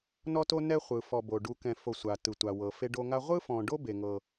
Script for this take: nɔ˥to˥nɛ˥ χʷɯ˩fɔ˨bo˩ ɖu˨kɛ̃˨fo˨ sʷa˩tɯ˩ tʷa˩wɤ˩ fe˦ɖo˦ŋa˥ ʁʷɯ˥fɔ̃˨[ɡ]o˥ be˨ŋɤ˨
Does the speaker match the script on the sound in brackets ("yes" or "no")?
no